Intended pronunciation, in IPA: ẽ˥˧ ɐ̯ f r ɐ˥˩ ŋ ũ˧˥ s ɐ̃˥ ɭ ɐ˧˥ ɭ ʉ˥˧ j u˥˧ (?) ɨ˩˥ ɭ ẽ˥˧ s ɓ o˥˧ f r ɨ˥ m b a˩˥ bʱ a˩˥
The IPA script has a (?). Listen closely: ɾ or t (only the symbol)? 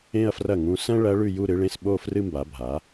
ɾ